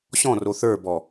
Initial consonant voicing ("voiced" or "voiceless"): voiceless